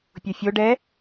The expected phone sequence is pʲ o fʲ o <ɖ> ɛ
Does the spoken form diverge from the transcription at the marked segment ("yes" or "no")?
no